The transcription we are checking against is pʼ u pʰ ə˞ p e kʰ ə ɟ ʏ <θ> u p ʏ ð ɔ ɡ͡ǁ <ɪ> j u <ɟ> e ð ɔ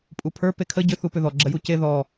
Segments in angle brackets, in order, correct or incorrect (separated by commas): correct, incorrect, incorrect